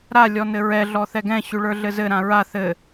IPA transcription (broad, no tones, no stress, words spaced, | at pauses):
ɾa lʲɔnɘɹɛ ɮɔθɛɡɛ̃ ɕʉɭə˞ɮɘzɘ ɾãɹa θɘ